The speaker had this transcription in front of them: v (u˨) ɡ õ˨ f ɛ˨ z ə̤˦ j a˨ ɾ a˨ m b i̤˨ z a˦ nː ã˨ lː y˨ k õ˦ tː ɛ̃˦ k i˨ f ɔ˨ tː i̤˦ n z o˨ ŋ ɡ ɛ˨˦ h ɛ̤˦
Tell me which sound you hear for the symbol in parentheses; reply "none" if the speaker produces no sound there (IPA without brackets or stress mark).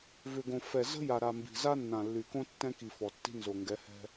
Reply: ʏ˨